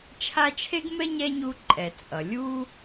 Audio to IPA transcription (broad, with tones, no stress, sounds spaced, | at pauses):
t͡ʃʰ a˦ t͡ʃʰ e˥ ɡ m ɛ˥ ɲ ɛ˥ ɲ u˦ ǃʼ ɛ˨ t͡sʼ ʌ˩ lʲ u˦